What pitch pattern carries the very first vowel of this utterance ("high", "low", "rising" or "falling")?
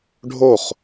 falling